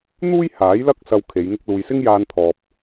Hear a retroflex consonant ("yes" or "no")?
no